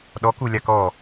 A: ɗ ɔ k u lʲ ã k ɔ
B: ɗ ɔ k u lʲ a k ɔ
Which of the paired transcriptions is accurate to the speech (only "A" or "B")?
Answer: B